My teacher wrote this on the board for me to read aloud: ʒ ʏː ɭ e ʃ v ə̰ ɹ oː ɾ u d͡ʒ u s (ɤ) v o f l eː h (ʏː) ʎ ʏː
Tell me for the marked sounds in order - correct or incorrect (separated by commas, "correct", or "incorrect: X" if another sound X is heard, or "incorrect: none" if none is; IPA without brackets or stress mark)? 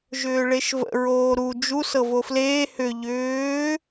correct, incorrect: ʏ